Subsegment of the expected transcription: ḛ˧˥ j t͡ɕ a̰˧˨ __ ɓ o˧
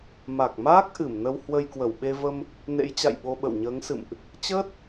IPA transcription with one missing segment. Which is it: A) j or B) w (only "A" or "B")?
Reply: A